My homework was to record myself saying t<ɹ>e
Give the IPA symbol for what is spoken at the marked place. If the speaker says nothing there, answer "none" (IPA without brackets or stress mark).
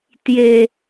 j